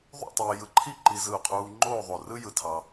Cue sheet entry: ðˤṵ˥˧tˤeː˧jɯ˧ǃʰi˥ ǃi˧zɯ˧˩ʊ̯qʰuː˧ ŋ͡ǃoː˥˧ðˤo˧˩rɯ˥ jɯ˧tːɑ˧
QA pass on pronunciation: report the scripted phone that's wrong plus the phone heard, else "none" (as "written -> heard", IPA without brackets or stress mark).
tː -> tʰ